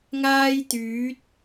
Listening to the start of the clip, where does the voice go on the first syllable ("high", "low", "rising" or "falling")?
high